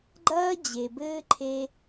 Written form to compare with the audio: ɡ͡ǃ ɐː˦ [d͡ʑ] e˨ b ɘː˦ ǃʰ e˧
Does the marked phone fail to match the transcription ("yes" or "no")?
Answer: no